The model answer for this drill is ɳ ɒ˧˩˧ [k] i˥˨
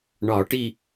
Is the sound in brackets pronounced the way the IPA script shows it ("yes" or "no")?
no